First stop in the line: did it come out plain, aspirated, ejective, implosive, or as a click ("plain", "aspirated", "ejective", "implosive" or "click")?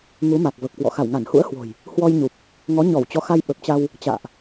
plain